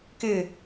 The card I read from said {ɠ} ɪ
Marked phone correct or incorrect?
incorrect